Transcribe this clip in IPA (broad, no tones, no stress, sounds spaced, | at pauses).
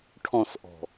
ʈʰ ɔ̃ s ʔ ɔ̤